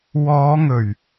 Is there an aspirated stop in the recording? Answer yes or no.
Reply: no